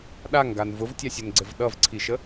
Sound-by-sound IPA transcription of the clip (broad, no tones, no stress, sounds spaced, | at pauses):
ɗ a ŋ ɡ a n v ʊ v tʲ a sʲ ə n ɡ͡ǀ ɘ v ɗ ʌ v ǀʰ i ʃ ə